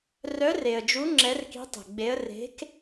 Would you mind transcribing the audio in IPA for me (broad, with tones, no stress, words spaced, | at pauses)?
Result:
rœ˧˥r e˨ə̯d͡ʒu˧˥ ŋ͡ǁɛ˧˥rki̤˧˥tˤe̤˨ɡ͡be˧˥ə̯ re̤˧˥k